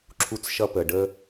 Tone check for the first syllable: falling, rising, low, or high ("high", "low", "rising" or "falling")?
high